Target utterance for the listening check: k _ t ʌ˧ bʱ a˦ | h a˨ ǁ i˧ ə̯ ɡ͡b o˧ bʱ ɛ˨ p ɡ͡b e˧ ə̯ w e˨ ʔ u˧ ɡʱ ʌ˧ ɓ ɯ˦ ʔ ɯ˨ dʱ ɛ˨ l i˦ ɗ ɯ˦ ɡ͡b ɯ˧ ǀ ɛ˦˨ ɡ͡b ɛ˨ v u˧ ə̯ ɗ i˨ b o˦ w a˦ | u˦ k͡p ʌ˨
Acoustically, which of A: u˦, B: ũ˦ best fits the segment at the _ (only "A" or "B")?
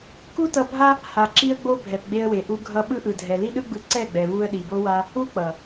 A